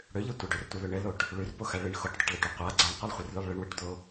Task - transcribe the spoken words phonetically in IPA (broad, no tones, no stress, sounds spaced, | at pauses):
ɽ ø ʎ ɨ tʷ ə ɖ ø r tʷ ɨ l ø ɳ ɘ l o ʈ | ɭ ʉ r p o x a ɭ ɨ ɳ x o ʈ dˤ ɘ ʈ l o ʈ ʉ qʷ a ɡ͡ǀ a ɳ qʷ ɘ lˠ χʷ ɨ r l ʉ lˠ ɭ ɨ ɳ w ɨ ʈ d̪ o